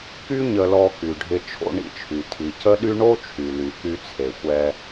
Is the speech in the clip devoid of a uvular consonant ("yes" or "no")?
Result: yes